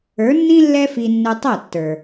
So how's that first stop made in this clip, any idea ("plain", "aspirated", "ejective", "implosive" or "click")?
plain